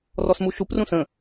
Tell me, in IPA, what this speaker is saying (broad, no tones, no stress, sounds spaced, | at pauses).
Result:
r ɔ s m u ʃ u p r ũ s ə̃